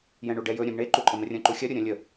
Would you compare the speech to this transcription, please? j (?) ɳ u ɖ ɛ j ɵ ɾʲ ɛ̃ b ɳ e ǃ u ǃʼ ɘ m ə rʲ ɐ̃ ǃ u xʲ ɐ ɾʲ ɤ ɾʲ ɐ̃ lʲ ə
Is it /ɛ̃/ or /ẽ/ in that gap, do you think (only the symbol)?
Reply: ɛ̃